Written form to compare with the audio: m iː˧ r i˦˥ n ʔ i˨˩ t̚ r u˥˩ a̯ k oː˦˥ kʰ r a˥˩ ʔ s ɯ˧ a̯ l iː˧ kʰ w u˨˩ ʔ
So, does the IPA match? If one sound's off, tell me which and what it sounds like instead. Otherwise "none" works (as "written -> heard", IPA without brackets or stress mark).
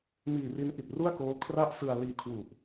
none